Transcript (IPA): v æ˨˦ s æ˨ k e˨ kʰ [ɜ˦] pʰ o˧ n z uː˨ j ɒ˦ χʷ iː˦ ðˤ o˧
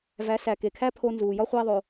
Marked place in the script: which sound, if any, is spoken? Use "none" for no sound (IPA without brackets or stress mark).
æ˦